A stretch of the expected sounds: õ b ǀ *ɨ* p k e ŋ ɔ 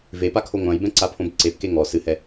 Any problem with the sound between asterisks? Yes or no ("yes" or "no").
yes